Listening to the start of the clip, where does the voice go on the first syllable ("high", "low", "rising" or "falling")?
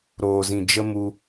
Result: low